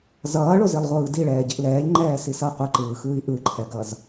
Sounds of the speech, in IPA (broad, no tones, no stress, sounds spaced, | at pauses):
z ʌː ɭ o z i lˠ ʁʷ ɯː d i ɭ ɛː ɟ i ʔ l ɛː ʎ ŋ͡ǃ ɛː s i s ʌ qʷ ɯ ǃ ɯː x ɯː i̯ ʔ ɯ ǃʰ ɛ ɡ ʌ z